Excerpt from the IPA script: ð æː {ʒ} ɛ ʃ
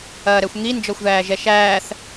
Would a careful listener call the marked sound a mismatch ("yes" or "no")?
no